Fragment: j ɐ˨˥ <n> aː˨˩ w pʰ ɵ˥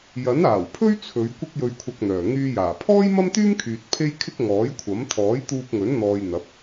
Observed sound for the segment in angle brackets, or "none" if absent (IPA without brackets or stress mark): n